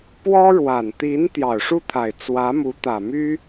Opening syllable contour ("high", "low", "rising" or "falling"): high